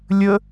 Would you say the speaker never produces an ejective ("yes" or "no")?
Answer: yes